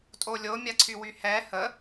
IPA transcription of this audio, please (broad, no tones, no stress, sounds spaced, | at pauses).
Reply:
tʼ o lʲ o mʲ a ǀʰ y w y h ɛ h ə